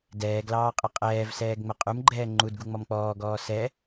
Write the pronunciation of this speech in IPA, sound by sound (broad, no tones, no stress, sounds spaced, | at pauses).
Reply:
d ɛː ɡ l ɑː qʼ ə qʼ ɛː v s ɛː ɡ ŋ͡m ə qʼ u m ɡ͡ǃ ɛː ŋ͡ǃ u d ɡ u ŋ͡m ɔ m k͡p ɔː ɡ ɔː s ɛ